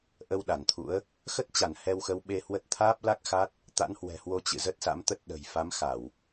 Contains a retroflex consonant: no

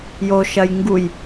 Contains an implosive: no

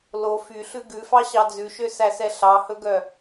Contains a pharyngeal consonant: no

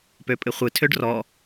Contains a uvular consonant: yes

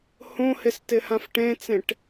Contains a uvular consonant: no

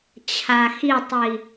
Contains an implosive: no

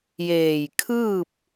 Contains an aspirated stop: yes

